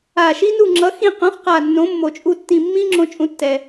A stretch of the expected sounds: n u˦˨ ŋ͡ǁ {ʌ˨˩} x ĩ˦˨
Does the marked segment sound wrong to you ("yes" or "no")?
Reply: yes